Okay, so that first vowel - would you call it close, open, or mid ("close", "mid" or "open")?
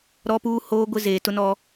mid